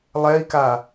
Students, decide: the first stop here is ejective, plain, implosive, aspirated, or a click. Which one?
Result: plain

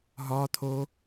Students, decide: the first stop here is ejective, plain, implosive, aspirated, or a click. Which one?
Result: aspirated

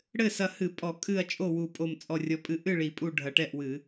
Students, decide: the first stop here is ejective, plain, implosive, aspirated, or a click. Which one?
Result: ejective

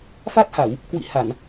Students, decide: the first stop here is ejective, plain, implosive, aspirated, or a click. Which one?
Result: plain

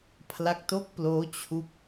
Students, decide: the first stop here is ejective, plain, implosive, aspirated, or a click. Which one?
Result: aspirated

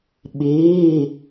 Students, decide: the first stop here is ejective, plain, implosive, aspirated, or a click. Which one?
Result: implosive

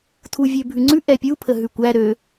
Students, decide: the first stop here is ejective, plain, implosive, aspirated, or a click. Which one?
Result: aspirated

